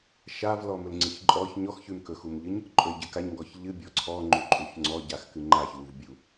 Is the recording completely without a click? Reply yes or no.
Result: no